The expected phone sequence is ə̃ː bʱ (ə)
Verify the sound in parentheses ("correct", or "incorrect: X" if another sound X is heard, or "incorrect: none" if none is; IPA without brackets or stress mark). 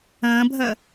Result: correct